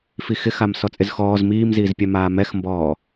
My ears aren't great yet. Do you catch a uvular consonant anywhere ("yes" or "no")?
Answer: no